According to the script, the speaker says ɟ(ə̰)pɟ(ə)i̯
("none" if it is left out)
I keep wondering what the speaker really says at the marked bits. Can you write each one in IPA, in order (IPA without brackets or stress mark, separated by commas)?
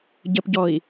ə, ɔ